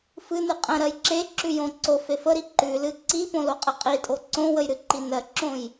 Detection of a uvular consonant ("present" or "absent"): present